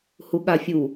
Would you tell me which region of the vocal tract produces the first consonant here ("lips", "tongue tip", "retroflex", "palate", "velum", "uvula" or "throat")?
throat